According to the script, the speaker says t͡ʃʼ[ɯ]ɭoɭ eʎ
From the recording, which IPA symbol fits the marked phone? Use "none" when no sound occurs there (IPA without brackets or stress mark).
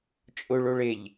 ʊ